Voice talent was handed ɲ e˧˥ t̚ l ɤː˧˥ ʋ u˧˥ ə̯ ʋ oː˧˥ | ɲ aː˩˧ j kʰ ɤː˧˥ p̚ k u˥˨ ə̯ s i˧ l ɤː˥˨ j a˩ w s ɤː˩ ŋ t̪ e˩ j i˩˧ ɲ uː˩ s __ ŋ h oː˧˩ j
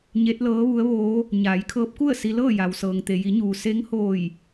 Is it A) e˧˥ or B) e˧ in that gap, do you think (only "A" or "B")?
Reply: A